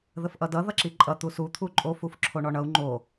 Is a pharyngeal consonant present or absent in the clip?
absent